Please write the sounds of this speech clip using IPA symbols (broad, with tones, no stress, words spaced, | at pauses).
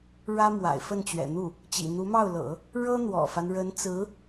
ɻä˥ mwa̰˨˩ɪ̯fə˥˩nt͡ɕɥɛ̰˨˩n̪u˥˩ | t͡ɕḭ˨˩ n̪u˧˥mɑ˥˩ʊ̯lɤ̰˨˩˦ | ɻɤ˥n̪wɔ̰˨˩fa˦n ɻə˧˥nt͡sɹ̩˧˥